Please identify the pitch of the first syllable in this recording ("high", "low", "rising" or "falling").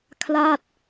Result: falling